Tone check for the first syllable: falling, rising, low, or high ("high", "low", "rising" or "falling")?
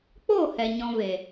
falling